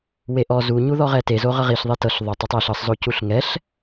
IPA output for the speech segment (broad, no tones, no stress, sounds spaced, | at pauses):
w e ʔ ɔ z u ɲ u ð ɔ ʁ ɛ t e z o ʁ ɤ ʁ i ɬ ðˤ e t ɤ ɬ ðˤ o tˤ ɤ tˤ ɛ ɬ ɤ sˤ z o c u ɬ ŋ ɛ ɬ